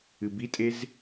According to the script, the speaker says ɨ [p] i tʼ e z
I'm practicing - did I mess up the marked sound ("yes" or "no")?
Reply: yes